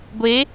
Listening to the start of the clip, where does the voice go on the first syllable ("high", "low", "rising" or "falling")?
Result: rising